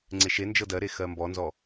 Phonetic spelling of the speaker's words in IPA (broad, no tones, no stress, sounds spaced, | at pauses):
ŋ͡ǀ e ʃ e n d͡ʒ ɤ d ɜ ɾ e x ɜ m b ɔ n z ɔ